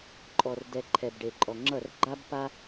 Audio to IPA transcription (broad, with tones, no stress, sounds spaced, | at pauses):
ǃʼ ɔ˨ r d ɛ˨ ǃʰ ɛ˨ b ɖ e˨ ǃʼ ɔ˨ ŋ͡ǁ ʌ˦˨ r ɡ͡ǃ a˦ b p a˦